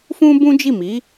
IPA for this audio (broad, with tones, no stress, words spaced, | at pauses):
fũ˦bũ˦ d͡ʒi˦˨mi˨˦